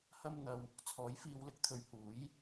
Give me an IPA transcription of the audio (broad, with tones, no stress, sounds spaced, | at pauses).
h ɐ˧ m n̪ ɐ˨ w | t͡sʰ ɔː˨˥ j f iː˧ w l ɪ˧ k̚ t̪ʰ ɵ˨ ɥ h uː˨˥ j